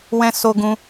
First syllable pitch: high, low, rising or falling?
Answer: high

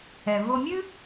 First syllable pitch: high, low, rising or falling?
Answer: low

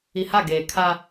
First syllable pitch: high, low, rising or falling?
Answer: low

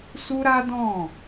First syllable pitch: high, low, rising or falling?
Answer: high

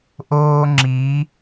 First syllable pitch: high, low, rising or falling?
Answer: high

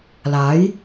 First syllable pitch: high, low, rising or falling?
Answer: rising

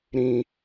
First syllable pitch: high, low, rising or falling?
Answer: low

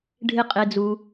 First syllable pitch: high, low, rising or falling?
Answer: low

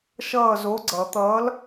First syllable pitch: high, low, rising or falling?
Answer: falling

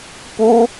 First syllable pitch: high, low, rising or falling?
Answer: high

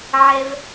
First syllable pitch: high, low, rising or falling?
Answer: low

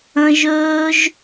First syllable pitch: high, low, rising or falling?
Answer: high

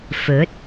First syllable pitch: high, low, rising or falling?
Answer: rising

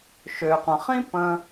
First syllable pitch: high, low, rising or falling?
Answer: low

